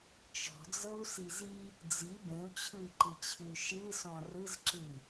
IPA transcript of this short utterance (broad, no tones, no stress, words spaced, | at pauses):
t͡ʃɔ̤d͡zɤu̯siz i | d͡zi bẽu̯t͡ɕʰɯi̯ǃɨt͡ɕʰɨy̯ ʃɨsɔ̃ rɯzǁɨi̯